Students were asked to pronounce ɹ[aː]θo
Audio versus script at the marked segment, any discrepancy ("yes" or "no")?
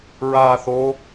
no